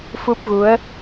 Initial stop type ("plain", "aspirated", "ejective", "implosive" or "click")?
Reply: plain